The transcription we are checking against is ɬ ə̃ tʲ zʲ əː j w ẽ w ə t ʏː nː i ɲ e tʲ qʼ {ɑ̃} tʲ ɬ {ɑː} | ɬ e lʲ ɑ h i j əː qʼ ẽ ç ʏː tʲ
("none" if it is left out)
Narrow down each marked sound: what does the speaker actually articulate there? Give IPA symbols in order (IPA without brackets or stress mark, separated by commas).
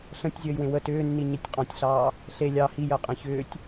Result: ɑ̃, ɑː